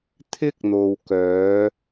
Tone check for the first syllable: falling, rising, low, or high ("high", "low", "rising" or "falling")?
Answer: high